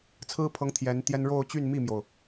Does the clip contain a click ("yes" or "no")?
no